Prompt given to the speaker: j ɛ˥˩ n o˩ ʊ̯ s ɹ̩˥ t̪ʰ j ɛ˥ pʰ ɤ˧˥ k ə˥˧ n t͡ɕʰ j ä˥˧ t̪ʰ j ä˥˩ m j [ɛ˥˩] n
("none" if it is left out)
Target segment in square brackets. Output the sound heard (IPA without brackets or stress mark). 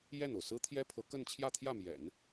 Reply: ɛ̰˨˩˦